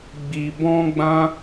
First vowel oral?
yes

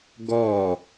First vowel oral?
yes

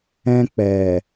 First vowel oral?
no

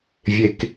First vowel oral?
yes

